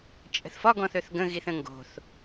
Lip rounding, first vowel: unrounded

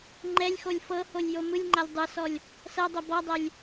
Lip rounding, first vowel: unrounded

